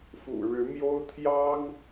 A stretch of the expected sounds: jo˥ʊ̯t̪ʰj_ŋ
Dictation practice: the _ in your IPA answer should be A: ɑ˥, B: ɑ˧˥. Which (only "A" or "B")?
A